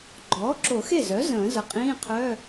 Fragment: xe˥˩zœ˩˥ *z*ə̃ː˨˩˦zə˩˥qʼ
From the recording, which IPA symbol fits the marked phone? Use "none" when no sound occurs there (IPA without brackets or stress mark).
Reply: z